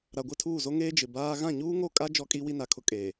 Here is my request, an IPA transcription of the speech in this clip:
ɾa˨ ɡʷɪ˦˨tʰuː˦˨zo˦ ŋeː˦ d͡ʒɪ˨baː˦ ɣã˦˨ɲuː˦ŋo˦˨kʼa˦ d͡ʒɔ˦kʼi˦ wi˦na˨kʰʊ˦ kʼeː˨

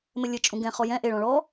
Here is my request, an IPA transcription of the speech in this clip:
mɘlʲɘ t͡ʃʼũɡɛ̃ χɔjɛ̃ ʔeɭ ɔ̃ɭɔ

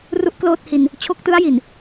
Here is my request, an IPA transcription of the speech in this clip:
ru˥˩ʔkloː˥˩t̚hi˧n | t͡ɕʰo˦˥k̚tɯ˦˥a̯ji˨˩n

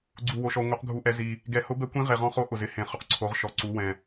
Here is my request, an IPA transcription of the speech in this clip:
ɡ͡ǀu˧wo˧ʃɔ˧ ŋʷɛ˧˥qɡʱu˧˥ʔɛ˧˥ zi˧ | ɡɛ˧hʊ˧˥bɛ˧˥kʷĩ˧˥ ʁe˧ʁɔ̃˧˥χo˧˥ ʔʊ˧zɪ˧hẽ˧ χʊ˧qǀʰo˧˥ʁʃɔ˧ǀu˧˥ wɛ̃˧

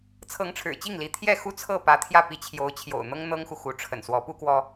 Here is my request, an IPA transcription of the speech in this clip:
t͡sʰɤ˧˥ŋʈ͡ʂʰɻ̩˨˩t͡ɕi˥˩ŋli˧˥ t̪ʰjɛ˥˩xu˥t͡sʰɤ˥˩ pä˧˥t̪ʰjä˥˩pi˧˥ t͡ɕʰjo˧˥ʊ̯t͡ɕʰjo̰˨˩ʊ̯n̪ɤ˥ŋ n̪ɤ˥ŋxu˨ xu˧˥ʈ͡ʂʰə̰˨˩nswɔ˧˥ pu˥kwɔ˥

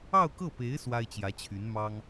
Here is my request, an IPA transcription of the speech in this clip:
ɑ˥˧ʊ̯kɤ˥˩pe˧˥ɪ̯ swa˥ɪ̯t͡ɕjä˧˥t͡ɕʰy˧˥n mɑ˥ŋ

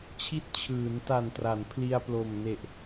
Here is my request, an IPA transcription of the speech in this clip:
t͡ɕʰi˦˥t̚t͡ɕʰɯː˩˦nta˨˩ntra˩˦n pʰli˧a̯plo˨˩m ne˨˩ʔ

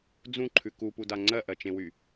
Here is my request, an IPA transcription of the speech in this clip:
d͡zũǃʰʉ kupuda ŋ͡ǀɜʔɜt͡ʃẽwy

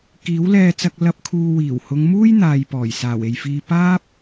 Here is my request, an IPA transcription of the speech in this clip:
kiː˨˥wlɛː˧t͡sɐ˧k̚ lɐ˧p̚ kʰuː˧ wiː˨˩whʊ˨˧ŋmuː˥j n̪aː˨jpɔː˨˩j saː˨˩we˨jfiː˧ paː˥p̚

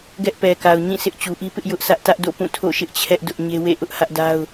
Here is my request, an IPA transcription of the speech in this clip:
ɡɛ˦ʔpɛ˨ka˨ʊ̯ ɲĩ˦˨sʰɪ˦ʔ t͡ɕu˨ʔi˦pɪ˦ʔ jʊ˦ʔsʰä˦ʔ tä˦ʔdo̰˦˨pũ˦˨ tʰo̰˦˨ʃɪ˦ʔt͡ɕʰɛ˦ʔ dʊ˦ʔ ɲe˦wḛ˦˨ ʔʊ˦ʔ hä˦ʔda˦ʊ̯

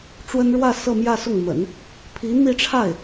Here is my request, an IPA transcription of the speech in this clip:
ʈ͡ʂwə˥n ɻwä˥˧ sɤ˥˧mjä˥˧sʊ˥˩ŋmə̰˨˩˦n | pʰi˧˥n̪i˥˧ʈ͡ʂʰa˥˩ɪ̯

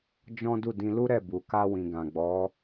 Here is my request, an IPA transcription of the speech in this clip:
d͡ʒɔ̃˦ du˦˨dĩ˧lu˦ ɾɛ˦˨bu˨ka˧ wĩ˨ ɡã˨ɡ͡bɔ˨˦

